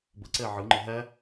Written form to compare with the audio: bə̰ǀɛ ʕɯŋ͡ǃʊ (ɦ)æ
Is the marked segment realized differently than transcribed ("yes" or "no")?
no